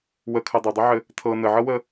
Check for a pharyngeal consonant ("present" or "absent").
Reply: present